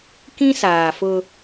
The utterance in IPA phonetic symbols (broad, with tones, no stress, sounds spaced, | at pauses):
k ĩ˦ s aː˨ f ʊ˦